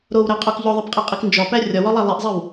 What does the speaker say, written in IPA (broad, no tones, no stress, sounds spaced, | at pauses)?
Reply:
ɾ o w ɾ æ qʼ o k ʎ o ðˤ e p qʼ e qʼ i k n d͡ʒ ɒ p æ rʲ ɒ w ɒ lˠ æ lˠ i ʔ zˤ i w